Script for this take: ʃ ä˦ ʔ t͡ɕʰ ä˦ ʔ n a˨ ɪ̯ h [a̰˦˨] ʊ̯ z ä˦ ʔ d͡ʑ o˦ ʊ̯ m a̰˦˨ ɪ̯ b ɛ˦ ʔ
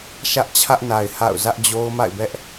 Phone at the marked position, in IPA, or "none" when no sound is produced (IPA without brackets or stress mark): a̰˦˨